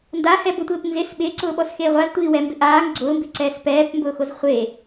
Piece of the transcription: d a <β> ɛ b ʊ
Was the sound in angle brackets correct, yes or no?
no